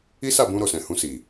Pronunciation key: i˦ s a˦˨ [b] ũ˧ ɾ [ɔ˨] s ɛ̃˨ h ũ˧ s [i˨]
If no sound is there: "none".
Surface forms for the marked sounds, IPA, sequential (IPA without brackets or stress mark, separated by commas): b, o˨, i˨